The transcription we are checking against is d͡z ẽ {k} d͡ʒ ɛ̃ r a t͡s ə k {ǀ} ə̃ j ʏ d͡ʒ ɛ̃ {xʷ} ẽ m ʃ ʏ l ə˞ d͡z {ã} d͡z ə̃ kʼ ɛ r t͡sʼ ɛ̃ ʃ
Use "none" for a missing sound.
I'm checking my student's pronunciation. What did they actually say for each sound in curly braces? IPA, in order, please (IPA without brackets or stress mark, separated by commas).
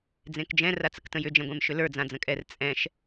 k, t, ɡʷ, ã